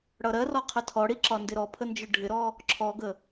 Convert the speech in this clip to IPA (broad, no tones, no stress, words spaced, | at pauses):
ɽʌɾɜrɔ qʰətʰɔɽi ǁɒndɪɾɔpʰə nd͡ʒʊɖʱɪɾɔ | ǁʰɔɡə